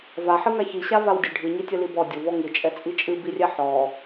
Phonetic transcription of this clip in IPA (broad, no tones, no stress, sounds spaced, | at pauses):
v a ħ ɨ ŋ a ç i ɕ a v a w dʲ ə ɖʱ ɨ ɲ i tʲ ə l i b ɔ dʲ o v ɔ ŋ ɨ t͡ʃʼ ɛ t͡sʼ i t͡ʃʼ ɨ b i rʲ ɛ ħ ɔ